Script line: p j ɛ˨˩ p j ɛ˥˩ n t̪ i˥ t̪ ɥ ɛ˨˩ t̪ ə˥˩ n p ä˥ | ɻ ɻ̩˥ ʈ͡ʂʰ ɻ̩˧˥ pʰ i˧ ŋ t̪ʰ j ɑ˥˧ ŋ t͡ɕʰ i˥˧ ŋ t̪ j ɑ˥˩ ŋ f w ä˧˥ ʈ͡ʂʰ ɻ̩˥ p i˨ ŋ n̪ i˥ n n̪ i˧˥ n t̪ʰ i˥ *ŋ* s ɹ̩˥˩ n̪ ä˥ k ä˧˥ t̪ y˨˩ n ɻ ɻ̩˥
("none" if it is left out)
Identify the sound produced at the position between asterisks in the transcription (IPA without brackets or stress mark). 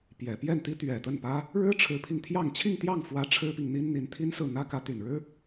n